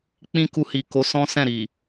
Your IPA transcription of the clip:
k͡pĩ˦ku˧hi˨ko˨˦ sɔ̃˦sɛ̃˦˨ɾi˨

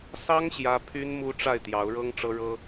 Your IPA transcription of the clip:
sɑ˥ŋ ɕjä˥ pʰy˥nmu˥ ʈ͡ʂa˥˩ɪ̯t̪jɑ˧˥ʊ̯ɻɤ˥ŋ ʈ͡ʂɤ˥ɻɤ˥

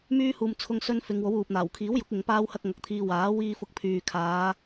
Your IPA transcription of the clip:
myː˥ huː˧mt͡sʰʊ˥ŋsɵ˥n fɪ˨˧ŋwo˨˥wuː˨p̚ n̪aː˨˩wkʰiː˨˥wjʊ˨˥k̚ ɪ˨˧ŋ paː˥whɐ˥k̚ŋɐ˨˥k̚t̪ʰiː˧ waː˨˥ wiː˧ fʊ˧k̚pʰyː˨kʰaː˨˧

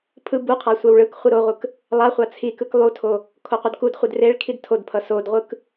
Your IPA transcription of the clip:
pʰɯ buqʰa sʷɛwɭɯkχʷɯ ɾoʁʷɯk | lˠaχʷa t͡sʰikɯk lˠutʰo | kʰoqʷʌdkudχʷed reɭkʰid tʰodpʰʌ sodʁʷɯk

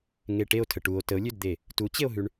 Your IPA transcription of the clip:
ŋeʈeo̯tʰə ʈuo̯ təo̯lʲødd̪e | tut͡ɕeo̯ɦʉɳ

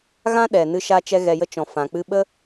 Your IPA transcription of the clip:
ɣã˦ɗɛ˨ nɨ˧ʃa˧t͡ʃɛ˧ ɣɛ˨jə˧ t͡ʃɔ̃˨ fã˨k͡pɨ˧ ɓə˦

